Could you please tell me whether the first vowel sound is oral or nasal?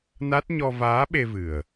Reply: oral